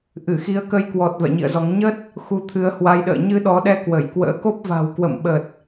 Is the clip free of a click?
yes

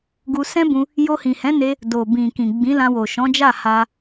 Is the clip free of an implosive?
yes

